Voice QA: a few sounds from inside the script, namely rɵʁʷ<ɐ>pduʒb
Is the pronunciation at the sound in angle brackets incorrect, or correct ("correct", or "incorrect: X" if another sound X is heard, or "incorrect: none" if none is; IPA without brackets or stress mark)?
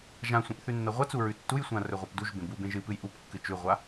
incorrect: a